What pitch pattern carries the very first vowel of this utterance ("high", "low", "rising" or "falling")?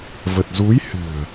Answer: low